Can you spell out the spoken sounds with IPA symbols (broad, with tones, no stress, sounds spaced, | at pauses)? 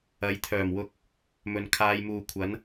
ɐ˨˥ j t̪ʰ œː˨˩ m w ʊ˨˥ k̚ | m ɵ˨ n kʰ aː˨˧ j m uː˨ kʷʰ ɐ˨˥ n